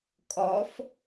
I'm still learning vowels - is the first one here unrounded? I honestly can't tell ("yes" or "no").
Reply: no